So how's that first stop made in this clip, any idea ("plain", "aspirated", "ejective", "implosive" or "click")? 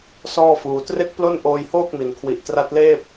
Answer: plain